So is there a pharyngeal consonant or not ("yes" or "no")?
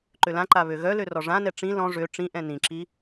no